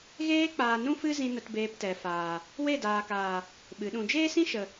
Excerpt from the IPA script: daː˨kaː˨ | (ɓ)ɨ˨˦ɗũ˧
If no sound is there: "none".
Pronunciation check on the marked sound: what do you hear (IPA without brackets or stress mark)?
ɓ